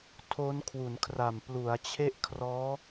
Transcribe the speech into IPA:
tʰ o˦˥ n kʰ w u˩˦ n kʰ r a˨˩ m p l u˩˦ a̯ t͡ɕʰ e˥˩ ʔ kʰ r ɔː˦˥

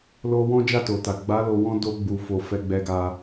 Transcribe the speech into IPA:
l o˧ w ɔ̃˦ d͡ʒ a˦˨ t o˨ t a˨ ɡ͡b a˨˦ l o˧ w ɔ̃˦ d o˧ ɡ͡b u˨ f o˨ f ɛ˧ ɡ͡b ɛ˧ ɡ a˧

